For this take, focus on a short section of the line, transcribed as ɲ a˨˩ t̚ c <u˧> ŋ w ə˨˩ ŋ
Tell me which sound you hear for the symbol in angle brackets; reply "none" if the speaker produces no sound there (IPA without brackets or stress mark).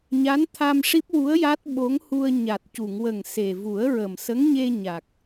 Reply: u˨˩˨